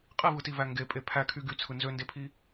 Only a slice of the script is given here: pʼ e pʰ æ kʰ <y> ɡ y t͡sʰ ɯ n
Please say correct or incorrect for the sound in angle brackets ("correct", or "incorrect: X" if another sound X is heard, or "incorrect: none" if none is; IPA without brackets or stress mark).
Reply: correct